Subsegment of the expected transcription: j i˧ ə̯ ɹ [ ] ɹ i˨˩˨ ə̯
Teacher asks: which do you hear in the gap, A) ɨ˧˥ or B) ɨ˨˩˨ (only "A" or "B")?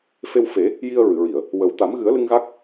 B